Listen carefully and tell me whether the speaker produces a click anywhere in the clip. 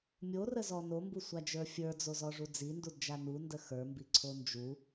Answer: yes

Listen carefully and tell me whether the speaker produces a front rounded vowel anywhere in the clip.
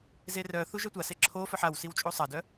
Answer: yes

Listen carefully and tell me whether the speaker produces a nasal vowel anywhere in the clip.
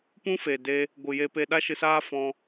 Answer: yes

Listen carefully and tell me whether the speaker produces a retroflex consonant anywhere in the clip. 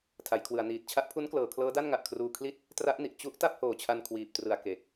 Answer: no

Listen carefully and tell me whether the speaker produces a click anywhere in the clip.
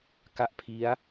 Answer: no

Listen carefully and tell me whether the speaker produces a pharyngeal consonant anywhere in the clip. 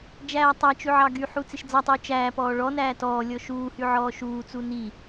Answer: yes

